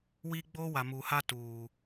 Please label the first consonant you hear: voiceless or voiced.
voiced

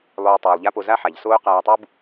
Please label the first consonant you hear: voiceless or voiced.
voiced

